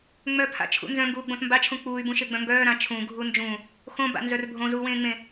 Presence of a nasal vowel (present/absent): present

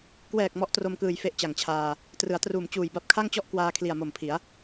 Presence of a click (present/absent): absent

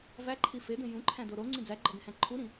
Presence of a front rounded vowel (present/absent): absent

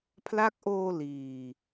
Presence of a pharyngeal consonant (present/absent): absent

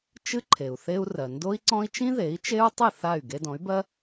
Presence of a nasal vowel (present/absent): present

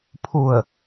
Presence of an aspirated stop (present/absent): present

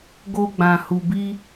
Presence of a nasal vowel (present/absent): present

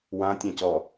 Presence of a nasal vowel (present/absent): present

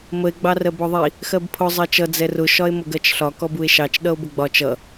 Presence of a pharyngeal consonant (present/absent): absent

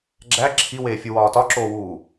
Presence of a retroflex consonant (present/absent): absent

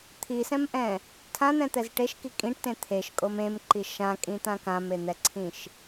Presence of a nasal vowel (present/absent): present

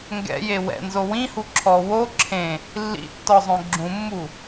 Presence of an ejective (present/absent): absent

